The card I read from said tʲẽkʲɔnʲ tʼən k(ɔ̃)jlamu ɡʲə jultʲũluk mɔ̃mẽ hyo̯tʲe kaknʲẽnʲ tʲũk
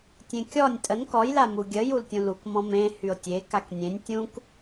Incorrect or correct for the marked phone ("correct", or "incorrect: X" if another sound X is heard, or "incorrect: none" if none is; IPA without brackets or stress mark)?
incorrect: ɔ